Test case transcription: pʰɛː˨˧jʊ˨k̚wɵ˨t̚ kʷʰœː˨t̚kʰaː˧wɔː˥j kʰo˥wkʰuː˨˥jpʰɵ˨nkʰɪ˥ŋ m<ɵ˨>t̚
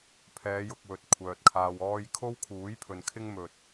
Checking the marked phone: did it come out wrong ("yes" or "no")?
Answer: yes